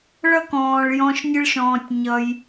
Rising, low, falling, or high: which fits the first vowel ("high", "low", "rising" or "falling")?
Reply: high